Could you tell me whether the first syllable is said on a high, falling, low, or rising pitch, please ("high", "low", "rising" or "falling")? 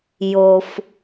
low